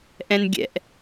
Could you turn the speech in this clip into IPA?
ʔ ɛ̃ n ɡʲ ɛ̰ ʔ

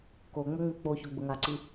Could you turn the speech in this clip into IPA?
k o ŋ͡m ə ŋ͡m i k͡p o ç o ɡ͡b ʊ ŋ a ǀ i

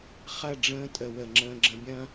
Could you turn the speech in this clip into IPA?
χ ɐ˦˨ ɖ͡ʐ ə̃ː˧ tʼ ə˨ w ə˨ ŋ͡ǁ ə̃ː˧ ɡ͡ǁ ə̃˧ bʲ ɐ̃˦

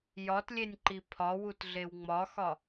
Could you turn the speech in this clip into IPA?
j ɒ t lʲ e nʲ ǃ i pʰ ɒ w u t ɮ e w ŋ͡m ɒ x ɒ

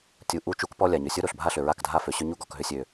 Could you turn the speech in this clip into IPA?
tʲ u˨ ʔ u˦˨ t͡ʃ u˦ k p ɔ˦ lʲ a˨ ɲ ʏ˨ sʲ o˦ ɾ o˨ ɬ bʱ a˦ ɬ ʏ˨ ɹ a˦˨ k dʱ a˦ f ø˨ ɕ ʏ˦ ɲ u˦ ɡ ɔ˨ k ɦ ʏ˦ sʲ ø˦

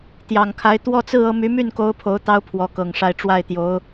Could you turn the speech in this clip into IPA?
t̪ j ɑ˨˩ ŋ kʰ a˧˥ ɪ̯ t̪ w ɔ˥˧ t͡s ɹ̩˥˧ ɤ˥˩ m y˧˥ m y˥˩ n k o˧˥ ʊ̯ pʰ o˧˥ ʊ̯ t̪ ɑ˥ ʊ̯ pʰ w ɔ˧˥ k ɤ˨˩ ŋ ʂ a˥˧ ɪ̯ ʈ͡ʂ w a˥˩ ɪ̯ t̪ j o˧˥ ʊ̯

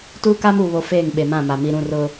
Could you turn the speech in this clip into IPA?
t uː˦ k aː˦ m uː˨ β o˨ f eː˦˨ ŋ ɓ e˨ m ã˦˨ m a˨ m i˨ ɾ ũ˦˨ r ʊ˦

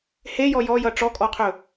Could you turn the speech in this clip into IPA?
h e j ɔ j ɔ j ʌ ʈ͡ʂ ɔ kʼ ɔ qʰ ɵ

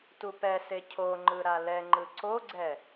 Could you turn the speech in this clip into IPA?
t u p ɛ s e cʰ o ŋ͡ǃ ɯ ɾ a l ɛ ŋ͡ǃ ɯ ǀ o ɡ͡ǀ ɛ

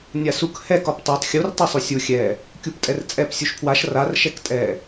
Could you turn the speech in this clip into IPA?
nʲ a s u k h ɛ k ɒ p tˤ u tˤ xʲ u r tˤ i sˤ u sʲ u xʲ ɛ | kʲ u p tʼ ɛ r t͡sʼ ɛ p sʲ u ʃ pʰ w a ʃ r a r ʃ ɛ k tʼ ɛ

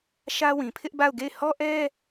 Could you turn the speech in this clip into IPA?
ʃ ä˦ w ĩ˨ pʰ ɪ˦ ʔ b a˦˨ ʊ̯ ɡ e˦˨ ɪ̯ h ɔ˦ ʔ ɛ˦

